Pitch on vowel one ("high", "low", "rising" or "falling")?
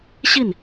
falling